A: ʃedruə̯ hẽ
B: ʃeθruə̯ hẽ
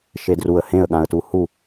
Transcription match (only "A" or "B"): A